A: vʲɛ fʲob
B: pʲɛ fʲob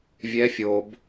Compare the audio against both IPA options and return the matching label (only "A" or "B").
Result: A